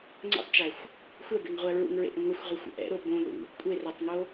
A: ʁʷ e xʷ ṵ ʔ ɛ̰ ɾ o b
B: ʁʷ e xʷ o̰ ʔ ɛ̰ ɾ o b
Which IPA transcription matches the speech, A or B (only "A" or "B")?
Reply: B